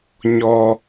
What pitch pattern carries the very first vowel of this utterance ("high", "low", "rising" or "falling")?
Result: high